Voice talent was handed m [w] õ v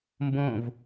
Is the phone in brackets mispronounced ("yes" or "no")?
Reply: yes